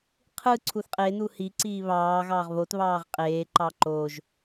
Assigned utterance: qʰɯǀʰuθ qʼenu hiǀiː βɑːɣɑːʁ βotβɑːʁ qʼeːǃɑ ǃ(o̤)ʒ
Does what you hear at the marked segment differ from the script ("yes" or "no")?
yes